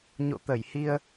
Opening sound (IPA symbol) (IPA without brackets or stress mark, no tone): ɲ